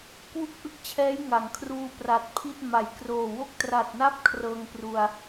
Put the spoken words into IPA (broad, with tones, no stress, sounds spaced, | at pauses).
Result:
k w u˥˩ k̚ ʔ ɯ˥˩ k̚ t͡ɕʰ ɛː˦˥ j ŋ a˩˦ ŋ kʰ r uː˧ p r a˨˩ t̚ pʰ i˥˩ t̚ m a˩˦ j k r oː˨˩ w o˥˩ k̚ t r a˨˩ t̚ n a˥˩ p̚ kʰ r ɤː˧ ŋ p r u˧ a̯